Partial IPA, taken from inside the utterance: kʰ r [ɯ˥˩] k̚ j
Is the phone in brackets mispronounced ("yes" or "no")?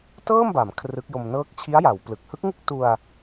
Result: yes